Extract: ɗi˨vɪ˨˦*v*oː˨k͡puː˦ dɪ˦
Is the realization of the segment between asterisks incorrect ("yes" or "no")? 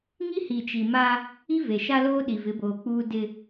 yes